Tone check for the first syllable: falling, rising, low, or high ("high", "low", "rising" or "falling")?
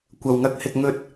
low